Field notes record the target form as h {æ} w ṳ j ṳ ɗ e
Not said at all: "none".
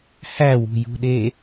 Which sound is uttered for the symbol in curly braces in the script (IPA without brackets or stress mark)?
æ